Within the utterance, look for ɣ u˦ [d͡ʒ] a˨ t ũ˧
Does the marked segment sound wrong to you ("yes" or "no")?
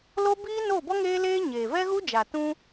no